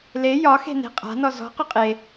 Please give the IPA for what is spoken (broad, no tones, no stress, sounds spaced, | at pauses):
l e j ɒ x e̤ n e̤ qʼ a̤ n ɔ z ɔ̤ q ɵ qʼ e